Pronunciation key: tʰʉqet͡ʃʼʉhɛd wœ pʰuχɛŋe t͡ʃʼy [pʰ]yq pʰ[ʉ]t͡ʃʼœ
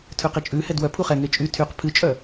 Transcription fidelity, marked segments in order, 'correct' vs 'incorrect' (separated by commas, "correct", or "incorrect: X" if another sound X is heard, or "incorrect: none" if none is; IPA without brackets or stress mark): incorrect: tʰ, incorrect: ɨ